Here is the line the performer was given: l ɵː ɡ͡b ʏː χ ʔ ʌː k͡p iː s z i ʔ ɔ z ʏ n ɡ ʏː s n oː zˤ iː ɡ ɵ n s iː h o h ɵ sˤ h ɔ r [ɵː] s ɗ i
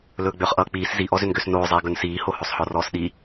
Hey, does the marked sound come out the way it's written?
no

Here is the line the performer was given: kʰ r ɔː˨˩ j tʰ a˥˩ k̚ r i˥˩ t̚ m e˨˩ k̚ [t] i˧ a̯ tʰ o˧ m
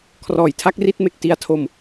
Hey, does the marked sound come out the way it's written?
yes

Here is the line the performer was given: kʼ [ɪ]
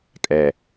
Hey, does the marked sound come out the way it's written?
no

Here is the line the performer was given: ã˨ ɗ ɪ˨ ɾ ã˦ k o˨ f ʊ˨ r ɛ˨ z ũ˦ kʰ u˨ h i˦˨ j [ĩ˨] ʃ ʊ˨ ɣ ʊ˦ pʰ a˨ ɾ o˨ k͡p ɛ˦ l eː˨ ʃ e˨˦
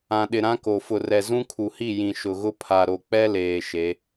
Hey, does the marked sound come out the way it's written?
yes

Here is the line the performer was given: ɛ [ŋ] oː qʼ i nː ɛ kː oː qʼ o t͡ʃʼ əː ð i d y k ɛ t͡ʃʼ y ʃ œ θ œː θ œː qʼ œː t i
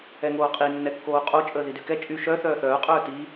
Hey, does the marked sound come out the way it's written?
yes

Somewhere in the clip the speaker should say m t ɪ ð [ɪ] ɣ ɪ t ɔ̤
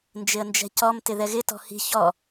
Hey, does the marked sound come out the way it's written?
no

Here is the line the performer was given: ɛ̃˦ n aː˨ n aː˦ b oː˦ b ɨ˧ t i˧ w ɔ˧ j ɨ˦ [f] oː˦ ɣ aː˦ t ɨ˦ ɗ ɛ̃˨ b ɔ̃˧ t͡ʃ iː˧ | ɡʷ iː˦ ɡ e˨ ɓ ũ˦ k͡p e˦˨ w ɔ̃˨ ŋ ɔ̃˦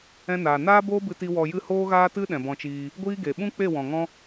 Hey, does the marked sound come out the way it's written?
no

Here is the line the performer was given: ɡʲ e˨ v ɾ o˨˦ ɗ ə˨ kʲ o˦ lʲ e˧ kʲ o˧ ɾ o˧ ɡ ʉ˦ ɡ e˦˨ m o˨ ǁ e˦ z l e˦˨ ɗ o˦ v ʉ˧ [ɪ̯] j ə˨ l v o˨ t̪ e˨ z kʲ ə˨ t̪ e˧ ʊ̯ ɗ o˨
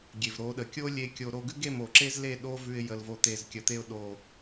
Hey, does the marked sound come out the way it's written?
yes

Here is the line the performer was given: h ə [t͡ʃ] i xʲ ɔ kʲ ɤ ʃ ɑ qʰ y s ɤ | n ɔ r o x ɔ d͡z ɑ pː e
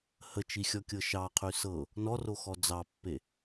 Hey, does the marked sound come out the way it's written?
yes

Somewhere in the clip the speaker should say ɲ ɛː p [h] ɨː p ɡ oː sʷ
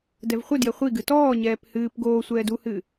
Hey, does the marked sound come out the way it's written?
yes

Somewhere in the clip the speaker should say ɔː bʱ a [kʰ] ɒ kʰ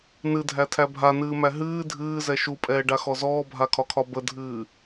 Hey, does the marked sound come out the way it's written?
yes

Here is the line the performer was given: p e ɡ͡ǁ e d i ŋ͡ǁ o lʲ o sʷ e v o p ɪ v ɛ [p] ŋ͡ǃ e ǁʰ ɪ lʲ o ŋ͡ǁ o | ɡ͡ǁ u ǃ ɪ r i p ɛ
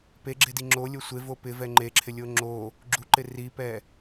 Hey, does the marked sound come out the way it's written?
no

